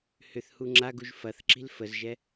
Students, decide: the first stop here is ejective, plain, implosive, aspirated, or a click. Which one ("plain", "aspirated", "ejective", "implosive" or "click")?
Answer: click